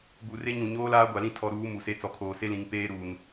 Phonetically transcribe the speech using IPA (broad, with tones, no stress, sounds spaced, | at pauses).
b u˨ r e˦ ɲ ũ˨ ɲ oː˦ l aː˦ ɡʷ a˨ l ĩ˦ tʰ ɔ˨ ɾ uː˨˦ m u˨ s e˦ t͡s ɔ˨ kʰ oː˨ s e˦ l ĩ˨ ŋ p eː˦ ɾ uː˨ n